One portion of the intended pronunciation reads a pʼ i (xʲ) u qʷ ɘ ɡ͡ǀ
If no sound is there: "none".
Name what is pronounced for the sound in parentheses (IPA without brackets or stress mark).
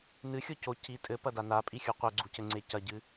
xʲ